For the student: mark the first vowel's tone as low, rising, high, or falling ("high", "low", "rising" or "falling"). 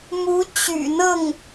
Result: rising